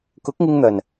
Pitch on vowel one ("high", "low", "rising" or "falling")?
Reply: rising